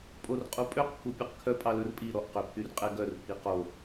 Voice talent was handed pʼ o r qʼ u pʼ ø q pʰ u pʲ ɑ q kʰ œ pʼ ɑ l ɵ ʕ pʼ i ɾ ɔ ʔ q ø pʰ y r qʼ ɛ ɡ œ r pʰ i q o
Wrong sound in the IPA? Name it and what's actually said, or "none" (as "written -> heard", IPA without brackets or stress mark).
ʕ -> r